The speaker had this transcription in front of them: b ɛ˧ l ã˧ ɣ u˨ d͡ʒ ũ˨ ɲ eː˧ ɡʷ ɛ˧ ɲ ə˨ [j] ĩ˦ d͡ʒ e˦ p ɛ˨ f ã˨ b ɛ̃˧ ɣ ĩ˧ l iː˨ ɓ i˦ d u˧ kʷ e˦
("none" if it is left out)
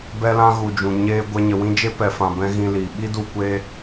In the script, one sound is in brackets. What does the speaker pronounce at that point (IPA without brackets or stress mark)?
w